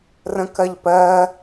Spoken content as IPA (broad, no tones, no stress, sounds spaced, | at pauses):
r ə̃ k ɜ ʎ p ɜ